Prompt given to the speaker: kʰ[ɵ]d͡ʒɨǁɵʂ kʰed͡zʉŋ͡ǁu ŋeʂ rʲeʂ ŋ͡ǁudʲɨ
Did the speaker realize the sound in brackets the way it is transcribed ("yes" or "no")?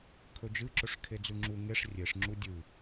yes